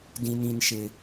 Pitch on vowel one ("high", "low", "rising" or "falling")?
high